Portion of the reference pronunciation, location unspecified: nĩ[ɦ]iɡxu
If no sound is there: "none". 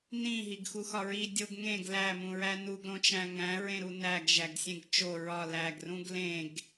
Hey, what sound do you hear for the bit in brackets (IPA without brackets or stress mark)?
ɦ